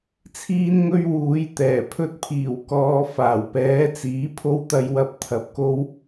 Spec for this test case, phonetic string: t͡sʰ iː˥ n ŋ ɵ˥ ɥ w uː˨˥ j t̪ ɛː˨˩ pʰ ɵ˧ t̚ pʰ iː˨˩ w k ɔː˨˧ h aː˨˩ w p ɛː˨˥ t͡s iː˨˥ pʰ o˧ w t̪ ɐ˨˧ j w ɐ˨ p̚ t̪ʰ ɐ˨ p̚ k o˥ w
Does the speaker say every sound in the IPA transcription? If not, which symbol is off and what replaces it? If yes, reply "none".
h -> f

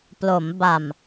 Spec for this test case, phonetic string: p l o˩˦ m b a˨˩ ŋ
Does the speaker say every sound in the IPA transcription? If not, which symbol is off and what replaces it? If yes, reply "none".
ŋ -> m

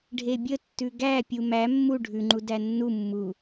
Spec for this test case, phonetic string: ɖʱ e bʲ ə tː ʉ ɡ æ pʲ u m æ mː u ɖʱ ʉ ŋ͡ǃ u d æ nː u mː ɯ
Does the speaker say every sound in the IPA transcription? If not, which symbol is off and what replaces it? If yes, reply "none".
ɯ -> u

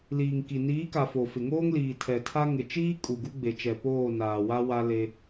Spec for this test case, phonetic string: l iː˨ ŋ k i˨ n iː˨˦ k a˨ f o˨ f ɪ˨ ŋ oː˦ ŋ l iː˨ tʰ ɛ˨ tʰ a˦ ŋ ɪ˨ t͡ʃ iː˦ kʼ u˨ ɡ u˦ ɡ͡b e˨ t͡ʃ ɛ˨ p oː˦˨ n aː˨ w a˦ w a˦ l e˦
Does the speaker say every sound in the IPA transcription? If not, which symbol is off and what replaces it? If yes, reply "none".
none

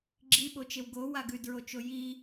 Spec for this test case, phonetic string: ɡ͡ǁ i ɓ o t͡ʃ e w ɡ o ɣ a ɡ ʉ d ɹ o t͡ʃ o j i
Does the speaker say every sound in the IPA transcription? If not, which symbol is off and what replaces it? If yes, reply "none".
ɣ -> w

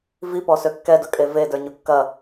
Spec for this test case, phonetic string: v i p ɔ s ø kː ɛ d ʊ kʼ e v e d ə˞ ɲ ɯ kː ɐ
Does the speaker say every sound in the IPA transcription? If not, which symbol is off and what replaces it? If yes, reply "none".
ɯ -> ʊ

